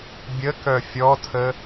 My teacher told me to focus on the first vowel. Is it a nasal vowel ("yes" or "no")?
no